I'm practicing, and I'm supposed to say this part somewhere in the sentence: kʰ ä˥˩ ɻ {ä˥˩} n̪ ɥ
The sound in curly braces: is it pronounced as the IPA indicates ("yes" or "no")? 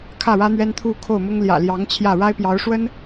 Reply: no